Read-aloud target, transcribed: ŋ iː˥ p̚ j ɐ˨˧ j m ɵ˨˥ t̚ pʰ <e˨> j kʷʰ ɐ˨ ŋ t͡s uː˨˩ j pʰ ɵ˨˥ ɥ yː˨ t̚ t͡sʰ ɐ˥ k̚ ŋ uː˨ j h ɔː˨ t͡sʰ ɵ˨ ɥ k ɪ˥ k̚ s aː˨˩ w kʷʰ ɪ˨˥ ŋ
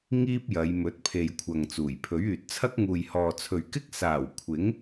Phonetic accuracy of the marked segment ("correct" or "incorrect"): correct